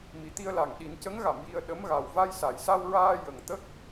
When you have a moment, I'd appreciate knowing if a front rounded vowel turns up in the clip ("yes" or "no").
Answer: no